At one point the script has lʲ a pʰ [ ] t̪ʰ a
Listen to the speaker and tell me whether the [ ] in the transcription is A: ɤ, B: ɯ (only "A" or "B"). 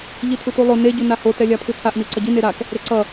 B